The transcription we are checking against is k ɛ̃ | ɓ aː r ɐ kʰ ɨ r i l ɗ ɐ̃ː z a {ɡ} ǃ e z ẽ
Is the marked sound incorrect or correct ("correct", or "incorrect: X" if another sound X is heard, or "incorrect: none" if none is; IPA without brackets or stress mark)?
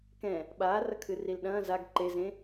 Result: correct